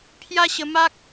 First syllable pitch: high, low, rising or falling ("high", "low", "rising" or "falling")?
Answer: high